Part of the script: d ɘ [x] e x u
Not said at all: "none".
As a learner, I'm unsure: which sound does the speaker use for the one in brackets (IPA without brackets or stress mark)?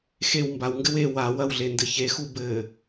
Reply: ç